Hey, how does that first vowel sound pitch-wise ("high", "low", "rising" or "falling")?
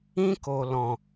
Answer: high